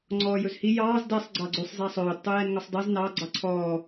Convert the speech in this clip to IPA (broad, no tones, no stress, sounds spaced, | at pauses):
ŋ͡ǀ ɔː j ɵ z h i j ɑː z d ɛ sˤ ɡ͡ǀ ɑ ɡ͡ǀ ʉ sˤ z æ sˤ ɵː d tˤ u j ɛ n ŋ ɵ sˤ dˤ i z n ɑ ɡ͡ǀ ɑ ǀʰ ɔː